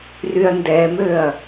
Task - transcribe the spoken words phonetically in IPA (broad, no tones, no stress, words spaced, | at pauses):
ryɐ̯ndɛmøɐ̯